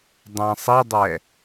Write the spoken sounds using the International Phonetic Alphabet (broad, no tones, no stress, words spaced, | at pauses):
dˤæ̃sˤidˤɛ